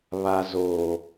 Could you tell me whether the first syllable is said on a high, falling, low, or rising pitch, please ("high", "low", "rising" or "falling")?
low